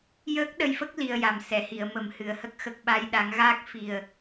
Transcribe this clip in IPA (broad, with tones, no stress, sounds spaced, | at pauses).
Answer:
j əː˦˥ k̚ ɗ ə˧ j f ə˦˥ k̚ l i˧ ə̯ j a˨˩ m s ɛ˨˩˨ h i˨˩˨ ə̯ m ə˨˩ m h ɨ˨˩ ə̯ h ə˦˥ k̚ x ə˨˩ k̚ ɓ a˧ j ɗ a˨˩˦ ŋ ɣ aː˦˥ k̚ f i˨˩ ə̯